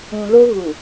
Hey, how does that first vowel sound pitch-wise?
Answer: low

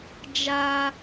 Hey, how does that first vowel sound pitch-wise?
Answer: high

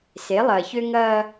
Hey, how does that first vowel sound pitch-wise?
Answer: rising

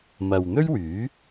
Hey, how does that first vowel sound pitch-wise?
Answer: low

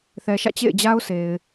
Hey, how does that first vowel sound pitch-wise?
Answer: low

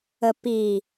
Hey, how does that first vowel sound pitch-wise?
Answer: low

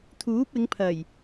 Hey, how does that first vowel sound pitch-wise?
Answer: rising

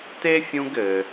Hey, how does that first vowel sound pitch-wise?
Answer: high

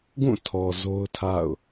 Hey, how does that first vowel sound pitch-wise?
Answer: falling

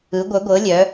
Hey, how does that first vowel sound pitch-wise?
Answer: rising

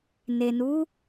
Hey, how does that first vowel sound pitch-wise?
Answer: low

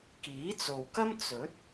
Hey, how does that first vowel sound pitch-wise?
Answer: rising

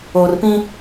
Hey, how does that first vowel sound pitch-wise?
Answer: low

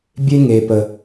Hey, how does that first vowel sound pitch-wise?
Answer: high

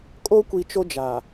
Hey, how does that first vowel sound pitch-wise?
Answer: high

